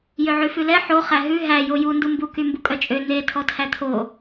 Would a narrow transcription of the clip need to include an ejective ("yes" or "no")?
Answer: yes